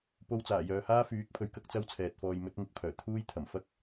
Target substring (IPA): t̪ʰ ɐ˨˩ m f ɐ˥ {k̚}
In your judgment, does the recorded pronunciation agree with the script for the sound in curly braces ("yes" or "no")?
yes